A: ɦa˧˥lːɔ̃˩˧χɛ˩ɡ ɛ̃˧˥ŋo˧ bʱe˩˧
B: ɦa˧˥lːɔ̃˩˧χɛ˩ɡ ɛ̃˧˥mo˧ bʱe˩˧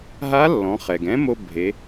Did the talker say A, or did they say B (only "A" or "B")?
B